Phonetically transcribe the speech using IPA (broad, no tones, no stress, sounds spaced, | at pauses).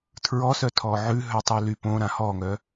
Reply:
tʰ ɹ ɔ s œ tʰ ɔ ʕ ʉ ɦ œ tˤ y l y p õ ɾ ã h ɔ ŋ œ